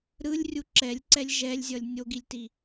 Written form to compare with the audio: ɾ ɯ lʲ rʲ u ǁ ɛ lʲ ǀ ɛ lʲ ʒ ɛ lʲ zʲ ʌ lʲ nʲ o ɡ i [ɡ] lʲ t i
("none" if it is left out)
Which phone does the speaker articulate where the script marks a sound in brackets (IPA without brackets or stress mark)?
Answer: none